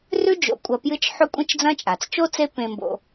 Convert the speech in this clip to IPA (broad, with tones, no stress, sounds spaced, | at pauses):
r ʉ˦ d͡ʒ o̰˨ kʷʼ ɐ˨ p j ɨ˦ t͡ʃ ħ ɵ˦ kʷʼ ẽ˦ t͡ʃ d͡z ɐ̃˦ t͡ʃʼ a˩ t͡s t͡ʃ o˥ t͡s e˦ p ẽ˨ m b o̰˨